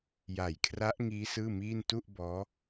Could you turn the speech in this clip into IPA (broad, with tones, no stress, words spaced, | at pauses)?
ja˨˩jkʰra˦˥ʔŋiː˦˥ sɯː˥˩miː˥˩n tu˥˩ʔbɔː˦˥